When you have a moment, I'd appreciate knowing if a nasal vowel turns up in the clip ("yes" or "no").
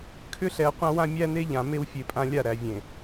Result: yes